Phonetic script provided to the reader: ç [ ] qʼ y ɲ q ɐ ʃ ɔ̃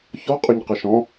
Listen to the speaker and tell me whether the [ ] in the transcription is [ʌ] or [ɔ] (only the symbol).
ɔ